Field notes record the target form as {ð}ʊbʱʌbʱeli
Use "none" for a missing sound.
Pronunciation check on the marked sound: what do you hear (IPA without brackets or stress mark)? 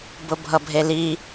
b